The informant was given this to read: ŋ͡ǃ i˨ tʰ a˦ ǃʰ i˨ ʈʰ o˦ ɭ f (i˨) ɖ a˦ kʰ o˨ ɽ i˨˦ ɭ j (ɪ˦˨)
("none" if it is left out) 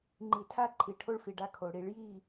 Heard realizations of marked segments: i˨, i˦˨

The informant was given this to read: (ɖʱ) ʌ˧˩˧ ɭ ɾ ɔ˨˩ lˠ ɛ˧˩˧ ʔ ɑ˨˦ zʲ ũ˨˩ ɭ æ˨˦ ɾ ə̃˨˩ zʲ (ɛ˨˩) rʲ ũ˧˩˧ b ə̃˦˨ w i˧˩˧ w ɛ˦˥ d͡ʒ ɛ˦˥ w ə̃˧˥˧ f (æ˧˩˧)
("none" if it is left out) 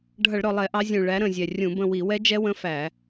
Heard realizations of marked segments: ɖʱ, ɛ˨˩, æ˧˩˧

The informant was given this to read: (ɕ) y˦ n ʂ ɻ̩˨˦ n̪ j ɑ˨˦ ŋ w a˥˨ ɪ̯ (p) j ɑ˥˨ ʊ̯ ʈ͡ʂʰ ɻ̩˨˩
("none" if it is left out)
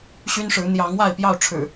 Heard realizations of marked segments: ɕ, p

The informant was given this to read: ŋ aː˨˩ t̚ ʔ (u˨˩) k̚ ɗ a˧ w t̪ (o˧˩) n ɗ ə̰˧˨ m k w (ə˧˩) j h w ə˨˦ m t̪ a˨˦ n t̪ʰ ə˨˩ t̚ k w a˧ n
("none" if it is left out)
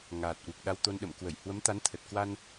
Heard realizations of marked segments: u˨˩, o˧, ə˧˩

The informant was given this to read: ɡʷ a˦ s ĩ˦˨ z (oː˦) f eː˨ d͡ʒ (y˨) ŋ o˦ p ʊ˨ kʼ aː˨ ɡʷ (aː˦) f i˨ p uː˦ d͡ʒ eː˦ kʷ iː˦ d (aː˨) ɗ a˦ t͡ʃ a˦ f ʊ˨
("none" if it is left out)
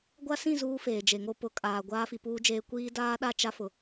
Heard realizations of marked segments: uː˦, e˨, aː˦, aː˦

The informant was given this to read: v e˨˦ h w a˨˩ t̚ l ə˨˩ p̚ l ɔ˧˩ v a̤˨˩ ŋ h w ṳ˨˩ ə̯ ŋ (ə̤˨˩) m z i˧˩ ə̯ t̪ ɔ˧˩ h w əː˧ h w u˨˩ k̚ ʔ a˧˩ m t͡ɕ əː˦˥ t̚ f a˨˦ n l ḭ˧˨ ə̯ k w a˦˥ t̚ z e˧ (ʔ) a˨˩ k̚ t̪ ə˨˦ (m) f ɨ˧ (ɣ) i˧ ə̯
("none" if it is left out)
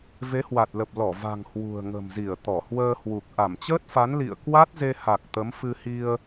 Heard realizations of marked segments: ə̤˨˩, h, m, h

